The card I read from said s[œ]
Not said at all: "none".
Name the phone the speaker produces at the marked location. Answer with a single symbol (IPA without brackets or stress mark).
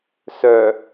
œ